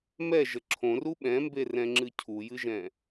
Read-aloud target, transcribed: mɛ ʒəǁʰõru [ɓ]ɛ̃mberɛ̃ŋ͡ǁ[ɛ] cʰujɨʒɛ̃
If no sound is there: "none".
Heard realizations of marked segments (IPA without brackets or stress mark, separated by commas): ɓ, ɨ